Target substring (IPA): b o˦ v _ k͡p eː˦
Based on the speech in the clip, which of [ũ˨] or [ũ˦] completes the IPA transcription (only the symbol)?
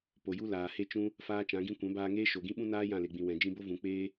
ũ˨